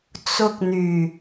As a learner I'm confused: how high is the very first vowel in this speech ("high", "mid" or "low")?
high